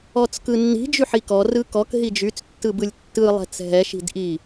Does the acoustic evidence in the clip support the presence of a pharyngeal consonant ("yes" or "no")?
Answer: yes